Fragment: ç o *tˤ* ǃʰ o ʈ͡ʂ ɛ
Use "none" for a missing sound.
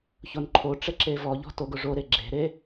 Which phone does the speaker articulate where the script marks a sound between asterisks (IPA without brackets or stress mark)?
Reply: n